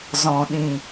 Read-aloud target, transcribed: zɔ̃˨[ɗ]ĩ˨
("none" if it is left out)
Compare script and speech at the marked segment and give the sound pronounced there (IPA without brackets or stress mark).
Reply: ɗ